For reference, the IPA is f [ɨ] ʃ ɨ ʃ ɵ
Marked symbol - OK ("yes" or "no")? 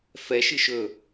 no